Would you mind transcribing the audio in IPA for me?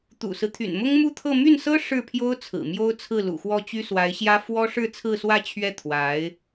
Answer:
t̪ ṵ˨˩ s ɹ̩˦ t̪ʰ y̰˨˩ n m ʊ˥ ŋ m u˥˧ t̪ʰ ɤ˥˧ m y˥˩ n s ɤ˥ ʂ ɻ̩˥˩ pʰ j o˥ ʊ̯ t͡sʰ ɹ̩˨˩ m j o˥ ʊ̯ t͡sʰ ɹ̩˥˩ l ṵ˨˩ x w ɔ˥˩ t͡ɕ y˥ s w a˧˥ ɪ̯ ɕ j ä˥ f w ɔ˥ ʂ ɻ̩˥˧ t͡sʰ ɹ̩˥˧ s w ä˥˧ t͡ɕʰ ɥ ɛ˥˩ t̪ʰ w a˧˥ ɪ̯

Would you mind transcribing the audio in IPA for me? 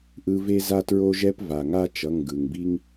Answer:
ʔ ɯ˦ v e˦ z a˦ t ɹ o˦ ʒ ɛ˦ p v a˩ ŋ a˦ t͡ʃ ʌ˩˧˩ ŋ ɡ ɯ˩ ŋ b i˦ ŋ

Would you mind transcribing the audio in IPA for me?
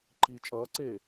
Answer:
ǃ iː t͡ʃʼ ʌː ǀ eː

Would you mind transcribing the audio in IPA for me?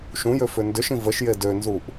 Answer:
ʃ ũ j ø f ʏ n d ʏ ʃ ĩ v ə ʃ j e d ø n z u ʔ

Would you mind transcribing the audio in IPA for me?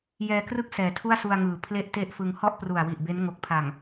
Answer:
j ɛː˧ k r ɯ˥˩ k̚ s ɛː˨˩ tʰ u˥˩ a̯ s u˧ a̯ ŋ ɯː˩˦ pʰ l e˥˩ ʔ t e˥˩ ʔ f ɯ˧ ŋ h ɔ˥˩ ʔ p r u˨˩ a̯ w i˨˩ ʔ b e˦˥ n ŋ o˨˩ k̚ pʰ a˨˩ ŋ

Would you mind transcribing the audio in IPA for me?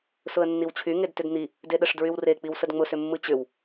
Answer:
s ʊ ə̯ nː i w t͡ɕʰ y ŋ e d t ʏ d n̪ i | d e ɗ ə ʂ d ɹ y w r e k͡p i w s ə d ŋ͡m ʊ s ʏ mː ɯ t͡ɕ ʏ w

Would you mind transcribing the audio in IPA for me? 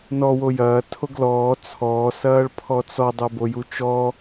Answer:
n ɔ w o j ɐː tʰ o ɡ l ɔː t͡sʰ ɔː s ɐː ɭ pʰ ɔ t͡s ɔ dˤ o b o j u t͡ʃ ɔ

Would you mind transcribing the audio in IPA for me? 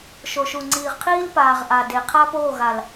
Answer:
ʃ o˨ ʃ u˨ ŋ͡ǀ iː˨ ʁ qʰ iː˦ l p aː˨ ʁ ʔ a˨ d e˨ qʰ a˦ p oː˦˨ ɣ a˨ l

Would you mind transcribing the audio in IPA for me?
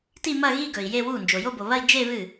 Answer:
t i˥˧ m ɐ˥˧ ɣ i˥˧ ɡ ɵ˨ i̯ j e˥˧ w u˥˩ n d͡ʒ o˨ j o˥˧ b o˨ β ɐ˥˧ i̯ d͡ʒ e˥˧ β ɨ˥˩

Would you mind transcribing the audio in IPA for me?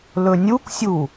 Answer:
l ɵ nʲ u k sʲ u

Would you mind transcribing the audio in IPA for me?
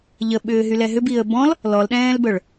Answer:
ʎ ə ɓ ʏː ɦ y l ɛ ɦ ʏ b i ə̯ b ɔ̃ l | l ɔ l ɗ ɛ̃ː l b œ ɭ

